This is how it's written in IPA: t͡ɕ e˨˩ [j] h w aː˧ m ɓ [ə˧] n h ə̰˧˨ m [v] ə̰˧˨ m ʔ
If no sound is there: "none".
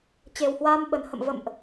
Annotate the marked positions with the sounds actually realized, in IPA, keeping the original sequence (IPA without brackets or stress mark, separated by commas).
w, ə˨˩, v